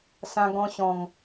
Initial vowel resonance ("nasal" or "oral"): nasal